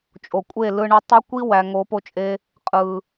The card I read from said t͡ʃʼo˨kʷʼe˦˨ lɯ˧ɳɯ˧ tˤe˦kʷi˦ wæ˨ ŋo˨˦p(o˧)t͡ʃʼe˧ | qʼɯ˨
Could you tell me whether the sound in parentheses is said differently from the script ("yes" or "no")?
no